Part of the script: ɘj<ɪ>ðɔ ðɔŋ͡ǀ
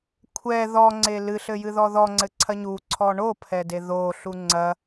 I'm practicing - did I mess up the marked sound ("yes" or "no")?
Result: yes